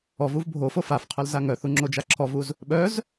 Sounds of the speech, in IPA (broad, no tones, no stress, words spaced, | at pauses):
ɔvuv bʱofo fafqʰœlza ŋœθuŋ͡ǁod͡ʒa ǁʰɔvuz | ɓœz